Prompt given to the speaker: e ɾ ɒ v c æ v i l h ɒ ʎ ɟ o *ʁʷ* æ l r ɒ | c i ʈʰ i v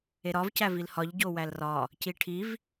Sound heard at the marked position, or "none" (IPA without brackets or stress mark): w